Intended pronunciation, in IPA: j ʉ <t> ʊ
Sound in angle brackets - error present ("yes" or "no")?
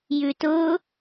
no